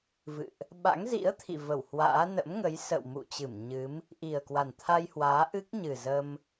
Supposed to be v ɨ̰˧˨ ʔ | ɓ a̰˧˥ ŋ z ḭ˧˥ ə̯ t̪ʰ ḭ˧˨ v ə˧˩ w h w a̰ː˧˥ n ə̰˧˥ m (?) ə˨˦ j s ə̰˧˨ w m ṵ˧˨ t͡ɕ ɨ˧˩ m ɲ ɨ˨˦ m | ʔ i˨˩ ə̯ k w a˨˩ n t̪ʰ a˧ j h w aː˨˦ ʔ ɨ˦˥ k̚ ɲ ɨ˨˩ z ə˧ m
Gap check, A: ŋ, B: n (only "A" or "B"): A